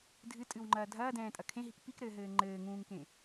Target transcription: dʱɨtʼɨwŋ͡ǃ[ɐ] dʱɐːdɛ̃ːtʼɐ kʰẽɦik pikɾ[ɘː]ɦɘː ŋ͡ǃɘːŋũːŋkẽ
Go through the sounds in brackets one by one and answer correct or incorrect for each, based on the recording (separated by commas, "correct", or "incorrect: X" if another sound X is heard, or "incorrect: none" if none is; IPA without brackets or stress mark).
incorrect: ɐː, correct